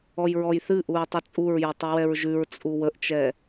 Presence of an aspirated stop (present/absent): absent